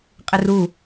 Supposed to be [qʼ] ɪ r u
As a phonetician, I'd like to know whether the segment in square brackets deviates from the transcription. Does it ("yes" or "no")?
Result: no